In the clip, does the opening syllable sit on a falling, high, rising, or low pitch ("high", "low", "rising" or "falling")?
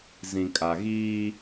low